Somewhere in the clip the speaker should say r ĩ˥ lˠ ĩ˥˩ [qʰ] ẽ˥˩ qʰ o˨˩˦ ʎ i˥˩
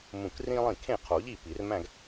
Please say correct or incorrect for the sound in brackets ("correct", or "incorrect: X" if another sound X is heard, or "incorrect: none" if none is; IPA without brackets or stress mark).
incorrect: kʰ